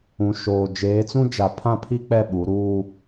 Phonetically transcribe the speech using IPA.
ũ˨ ʃ oː˨ d͡ʒ eː˨˦ t͡s ũ˦ d͡ʒ a˨˦ pʰ ã˦ pʰ i˦ k͡p ɛ˦˨ ɓ u˨˦ ɾ uː˦

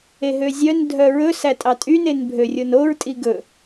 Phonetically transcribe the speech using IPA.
e ɦ ø zʲ œ n dʱ œ ɹ ɵ s æ tʼ ɑ tʼ y n e n bʱ ø rʲ o n o ɹ tʼ i ɡ ɵ

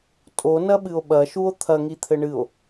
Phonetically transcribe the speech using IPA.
tʼ o n ɐ ɓ ɨ o̯ ɓ ɐ ʃ u o̯ t̪ʰ ɐ ŋ i t̪ʰ ɘ ɳ ɨ o̯

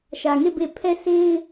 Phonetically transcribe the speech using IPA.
ʃ ä˨ ŋ e˦˨ b e˦˨ pʰ ɛ˦˨ s e˦ ɪ̯

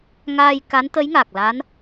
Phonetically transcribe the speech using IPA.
ŋ aː˧ j k a˧˥ n t̪ ə˧˥ j ŋ aː˨˩ k̚ l a˧˥ n

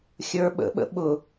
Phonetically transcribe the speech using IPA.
xʲ ə˞ ɓ ə̰ ɓ ə̰ ɓ ʊ

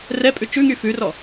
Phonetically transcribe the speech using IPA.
r ɛ pʼ ʉ t͡ʃ ʉ ŋ y f ʉ r ɔ

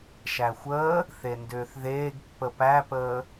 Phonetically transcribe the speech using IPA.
ʃ æ xʷ əː | θ e n d ʏː θ ð eː ɡ pː ə p æ p əː

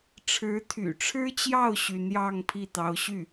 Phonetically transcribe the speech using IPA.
ʈ͡ʂʰ ɻ̩˧˥ t̪ʰ y̰˨˩ ʈ͡ʂʰ ɻ̩˥ t͡ɕ j ɑ˥˩ ʊ̯ ɕ y˧˥ n j ɑ˥˧ ŋ pʰ i˥˩ t̪ ɑ˧˥ ʊ̯ ɕ y˥˩

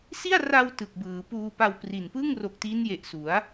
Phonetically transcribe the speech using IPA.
s i˥˩ a̯ r a˧ w t ɯ˨˩ k̚ b ɯː˩˦ p uː˧ p a˧ w p r i˨˩ n p ɯ˥˩ ŋ r o˨˩ k̚ t i˦˥ n j e˨˩ ʔ s u˩˦ a̯

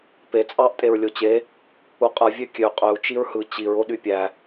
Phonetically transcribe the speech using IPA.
p e t͡sʼ ɑ ʔ tʼ e ɹ lʲ o t͡ɕ e | u qʼ ɯ vʲ ø kʲ ø qʼ ø u̯ t͡ʃ i ɹ h ɯ t͡ɕ i ɹ o ɗ y pʲ æ

